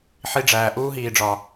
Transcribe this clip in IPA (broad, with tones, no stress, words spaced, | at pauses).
ħi˧ɖ͡ʐæː˨ ʔuː˦ɦiː˨ɖ͡ʐɒ˨